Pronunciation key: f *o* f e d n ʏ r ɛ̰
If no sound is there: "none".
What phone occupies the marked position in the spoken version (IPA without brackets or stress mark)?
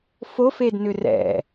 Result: o